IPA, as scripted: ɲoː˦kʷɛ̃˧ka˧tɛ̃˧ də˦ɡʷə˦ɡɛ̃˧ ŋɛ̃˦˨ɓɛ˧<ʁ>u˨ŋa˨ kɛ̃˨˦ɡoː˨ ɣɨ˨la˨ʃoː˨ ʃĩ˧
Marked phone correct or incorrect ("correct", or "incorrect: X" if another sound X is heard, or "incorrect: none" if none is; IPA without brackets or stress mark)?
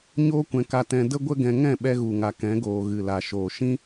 incorrect: ɣ